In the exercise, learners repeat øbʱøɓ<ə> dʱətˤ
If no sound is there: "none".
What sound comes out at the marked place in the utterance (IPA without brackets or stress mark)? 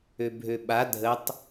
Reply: a